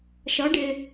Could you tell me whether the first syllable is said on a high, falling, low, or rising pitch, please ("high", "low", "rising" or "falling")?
rising